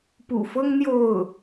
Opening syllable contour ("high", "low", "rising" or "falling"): low